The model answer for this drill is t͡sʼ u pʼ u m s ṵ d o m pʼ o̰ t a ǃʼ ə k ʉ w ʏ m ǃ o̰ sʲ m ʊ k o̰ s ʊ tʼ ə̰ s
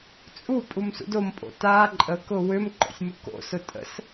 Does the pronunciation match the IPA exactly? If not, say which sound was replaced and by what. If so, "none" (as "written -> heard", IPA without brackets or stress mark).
ʉ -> ʊ